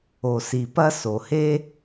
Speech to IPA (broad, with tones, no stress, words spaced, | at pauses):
o˨si˨pɐ˥ so˩he˥